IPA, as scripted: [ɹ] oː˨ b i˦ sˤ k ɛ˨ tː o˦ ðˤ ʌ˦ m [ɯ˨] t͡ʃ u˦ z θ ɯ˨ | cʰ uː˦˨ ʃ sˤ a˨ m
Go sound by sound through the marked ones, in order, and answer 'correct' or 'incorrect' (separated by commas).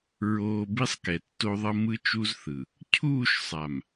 correct, incorrect